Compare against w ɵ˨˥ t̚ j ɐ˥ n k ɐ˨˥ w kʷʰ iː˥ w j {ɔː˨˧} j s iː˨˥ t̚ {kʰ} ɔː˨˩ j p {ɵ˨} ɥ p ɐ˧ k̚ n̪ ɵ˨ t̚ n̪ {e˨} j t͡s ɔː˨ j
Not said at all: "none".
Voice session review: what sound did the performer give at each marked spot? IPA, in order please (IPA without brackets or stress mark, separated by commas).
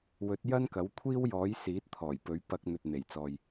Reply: ɔː˨˥, t̪ʰ, ɵ˨˥, e˨˩